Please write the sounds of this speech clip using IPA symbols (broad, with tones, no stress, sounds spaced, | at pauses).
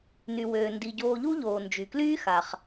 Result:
n y˩ w øː˩ n d i˩ ɟ oː˨ ʎ u˦ ʎ oː˩ n d͡ʒ y˩ k l yː˥ x a˩ χ